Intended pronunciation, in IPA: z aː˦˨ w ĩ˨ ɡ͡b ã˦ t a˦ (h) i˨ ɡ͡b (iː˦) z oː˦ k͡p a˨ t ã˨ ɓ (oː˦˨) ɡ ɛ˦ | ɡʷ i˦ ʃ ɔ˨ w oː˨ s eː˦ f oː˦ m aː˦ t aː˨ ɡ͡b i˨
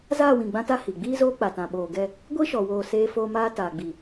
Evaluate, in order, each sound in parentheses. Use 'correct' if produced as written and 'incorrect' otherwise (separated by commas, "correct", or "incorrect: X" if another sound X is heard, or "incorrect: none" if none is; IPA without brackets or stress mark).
correct, correct, incorrect: oː˨